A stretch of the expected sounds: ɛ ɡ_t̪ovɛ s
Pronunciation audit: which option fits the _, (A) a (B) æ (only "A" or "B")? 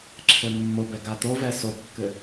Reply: A